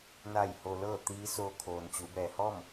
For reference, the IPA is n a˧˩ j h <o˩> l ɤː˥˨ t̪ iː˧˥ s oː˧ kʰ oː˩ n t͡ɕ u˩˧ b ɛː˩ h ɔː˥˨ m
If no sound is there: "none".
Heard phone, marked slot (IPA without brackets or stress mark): o˩